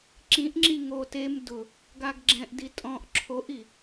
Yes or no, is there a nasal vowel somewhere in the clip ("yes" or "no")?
yes